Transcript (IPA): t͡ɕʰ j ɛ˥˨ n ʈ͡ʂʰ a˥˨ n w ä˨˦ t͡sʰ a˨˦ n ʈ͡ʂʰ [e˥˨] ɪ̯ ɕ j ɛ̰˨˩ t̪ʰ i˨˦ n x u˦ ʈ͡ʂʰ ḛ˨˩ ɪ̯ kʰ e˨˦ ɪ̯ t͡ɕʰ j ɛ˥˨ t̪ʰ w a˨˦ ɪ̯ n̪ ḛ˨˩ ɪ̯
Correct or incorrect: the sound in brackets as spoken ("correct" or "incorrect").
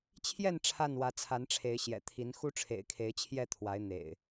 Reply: incorrect